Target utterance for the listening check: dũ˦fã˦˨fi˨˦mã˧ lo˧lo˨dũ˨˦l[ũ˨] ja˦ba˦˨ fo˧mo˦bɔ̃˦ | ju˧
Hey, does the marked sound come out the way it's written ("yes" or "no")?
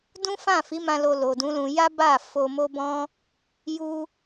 no